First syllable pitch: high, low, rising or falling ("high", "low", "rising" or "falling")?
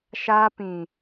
high